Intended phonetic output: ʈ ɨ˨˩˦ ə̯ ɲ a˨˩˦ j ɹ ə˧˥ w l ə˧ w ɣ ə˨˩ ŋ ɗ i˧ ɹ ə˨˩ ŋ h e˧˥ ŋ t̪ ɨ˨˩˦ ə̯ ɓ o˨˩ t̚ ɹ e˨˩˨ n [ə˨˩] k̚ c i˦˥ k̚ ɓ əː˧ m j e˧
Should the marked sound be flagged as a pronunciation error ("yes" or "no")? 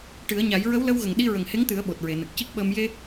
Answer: no